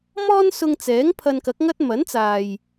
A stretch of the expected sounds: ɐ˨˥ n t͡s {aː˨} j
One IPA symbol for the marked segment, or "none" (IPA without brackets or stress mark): aː˨